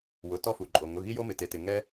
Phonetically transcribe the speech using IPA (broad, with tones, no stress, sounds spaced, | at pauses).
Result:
w ʊ˩˧˩ t ɔ˧ f u˩ ǃʼ o˩ ŋ ʊ˩˧˩ ɣ i˧ j o˧ m ɪ˩ t e˩ t ɪ˩ ŋ ɛ˧